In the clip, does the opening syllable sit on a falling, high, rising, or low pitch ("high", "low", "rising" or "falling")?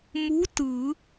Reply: rising